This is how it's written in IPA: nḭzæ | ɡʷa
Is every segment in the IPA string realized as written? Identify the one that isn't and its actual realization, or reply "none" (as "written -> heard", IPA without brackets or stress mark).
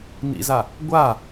æ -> a